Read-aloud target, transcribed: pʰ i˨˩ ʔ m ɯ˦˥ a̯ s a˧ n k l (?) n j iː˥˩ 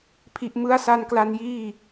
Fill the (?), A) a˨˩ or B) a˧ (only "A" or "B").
B